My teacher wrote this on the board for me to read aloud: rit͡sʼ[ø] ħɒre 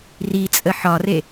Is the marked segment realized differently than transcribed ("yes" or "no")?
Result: yes